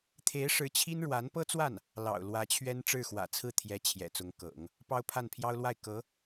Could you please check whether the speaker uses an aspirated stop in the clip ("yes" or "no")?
yes